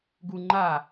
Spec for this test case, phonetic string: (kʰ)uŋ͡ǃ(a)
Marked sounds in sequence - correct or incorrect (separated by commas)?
incorrect, correct